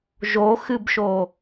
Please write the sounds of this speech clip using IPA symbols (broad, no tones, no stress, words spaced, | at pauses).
ʒoxɨbʃo